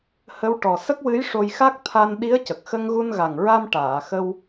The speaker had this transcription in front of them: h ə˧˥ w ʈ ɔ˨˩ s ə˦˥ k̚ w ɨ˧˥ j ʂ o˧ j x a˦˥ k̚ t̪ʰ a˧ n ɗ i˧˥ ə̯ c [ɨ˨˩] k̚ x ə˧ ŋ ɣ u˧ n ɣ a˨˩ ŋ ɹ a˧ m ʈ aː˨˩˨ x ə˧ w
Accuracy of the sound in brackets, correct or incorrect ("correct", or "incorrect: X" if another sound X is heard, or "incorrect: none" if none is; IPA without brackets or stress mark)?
incorrect: ə˨˩